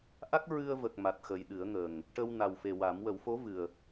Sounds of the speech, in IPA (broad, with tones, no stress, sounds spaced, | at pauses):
ʔ a˦˥ k̚ ɹ ɨ˧ ə̯ v ə˨˩ k̚ m a˨˩ t̚ x ə˨˩ j ɗ ɨ˨˩˦ ə̯ ŋ ə˨˩ ŋ | ʈ ə˧ w n a˨˩ w f e˨˩ w a˨˩˦ m w ə˨˩˦ w f o˧˥ v ɨ˨˩ ə̯